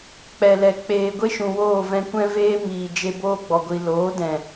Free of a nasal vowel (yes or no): no